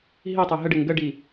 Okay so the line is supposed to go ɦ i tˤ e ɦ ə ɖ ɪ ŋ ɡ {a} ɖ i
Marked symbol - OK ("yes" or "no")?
no